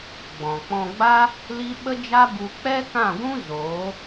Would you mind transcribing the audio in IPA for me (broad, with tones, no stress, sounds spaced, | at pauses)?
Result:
ɡ͡b ɔ̃˨ k͡p ɔ̃˧ ɡ͡b a˦ | l i˦ ɓ ə˦ d͡ʒ a˦ b u˦ k͡p ɛ˦ k ã˦˨ ɡʷ ũ˦ z oː˨˦